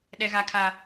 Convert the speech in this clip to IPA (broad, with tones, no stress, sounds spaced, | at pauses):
ɗ ɛ˦ ɣ a˦ kʰ a˦